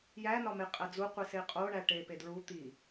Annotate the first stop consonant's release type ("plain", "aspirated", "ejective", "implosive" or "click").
ejective